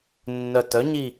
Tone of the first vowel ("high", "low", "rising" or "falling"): low